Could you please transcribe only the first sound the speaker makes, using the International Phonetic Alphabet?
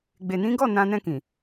ɡ͡b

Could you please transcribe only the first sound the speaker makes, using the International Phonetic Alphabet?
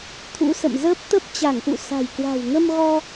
t̪ʰ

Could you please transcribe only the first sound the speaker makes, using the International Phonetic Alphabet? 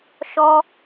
ʃ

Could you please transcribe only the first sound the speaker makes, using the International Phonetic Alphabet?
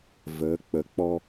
v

